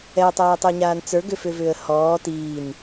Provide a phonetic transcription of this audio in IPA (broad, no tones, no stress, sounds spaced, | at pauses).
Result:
ɛ ə̯ tˤ ɛː tˤ ə˞ ɲ aː n t͡s ə˞ ɡ ʏ f ʏ v ʏː ə̯ h ɔː t iː n